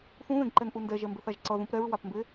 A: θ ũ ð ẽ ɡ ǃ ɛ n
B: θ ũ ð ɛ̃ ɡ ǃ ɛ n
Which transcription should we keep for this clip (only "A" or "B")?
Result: A